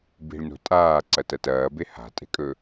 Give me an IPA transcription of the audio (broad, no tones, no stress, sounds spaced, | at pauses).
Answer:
b i̤ ɭ n o̤ tʼ aː ǀ ɐ t ɐ t ɐː b e h a̤ tʼ e̤ kʼ ɵ